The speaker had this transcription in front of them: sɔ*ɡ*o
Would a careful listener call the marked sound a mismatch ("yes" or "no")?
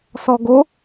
no